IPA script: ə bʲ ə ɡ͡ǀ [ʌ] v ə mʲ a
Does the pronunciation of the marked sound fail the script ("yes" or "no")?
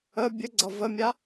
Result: no